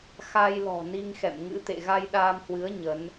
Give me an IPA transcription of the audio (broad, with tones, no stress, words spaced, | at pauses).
xa˧jlɔ̤˨˩ ni˧ŋxɛ̰˧˨m ŋɨ̰˧˥t̪ḛ˧˨ ɣa˧jɗaː˧mhwɨ˨˦ə̯ ɲə˨˦n